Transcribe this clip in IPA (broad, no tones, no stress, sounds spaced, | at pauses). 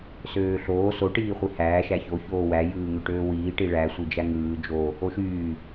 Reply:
s øː ɬ oː s o ʈ iː χʷ i h æː ʃ æ ç o ç oː w æ j ɯː ŋ ø ʈ øː w iː ʈ i ɭ æ sʷ i d͡ʒ æ ŋ ɯː d͡ʒ o | o ʃ yː